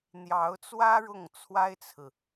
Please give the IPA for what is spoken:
n̪ j ɑ˧˥ ʊ̯ t͡s w ä˥ ɻ ʊ˥˩ ŋ t͡sʰ w a˥ ɪ̯ t͡sʰ ɹ̩˨

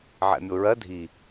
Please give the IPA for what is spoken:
ʕ ɛ̰ mʲ o ɹ ɜ dʱ i

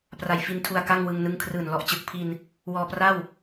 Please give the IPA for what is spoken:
p r a˨˩ j f i˧ n tʰ u˧ a̯ k a˥˩ ŋ w ɯ˧ ŋ n ɯ˦˥ ŋ kʰ r ɯː˨˩ n l ɔ˨˩ ʔ t͡ɕ ɯ˨˩ k̚ pʰ i˧ n | w ɔː˧ p r a˥˩ w

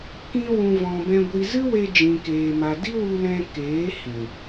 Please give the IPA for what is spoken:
k ĩ˧ w ũ˨ v ɔ̃˨ b ɛ̃˧ ɡʷ i˧ z ɨ˦ w e˧ d͡ʒ ĩ˨ k eː˨ m a˨ d i˦ w u˧ l ɛ̃˧ k eː˨˦ h ĩ˨

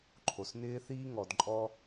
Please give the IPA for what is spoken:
ǃʰ o˩ s n ɪː˧ θ iː˧ ŋ ɔ˩ d ǃʼ ɔ˧

